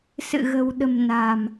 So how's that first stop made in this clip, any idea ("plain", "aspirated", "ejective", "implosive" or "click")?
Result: implosive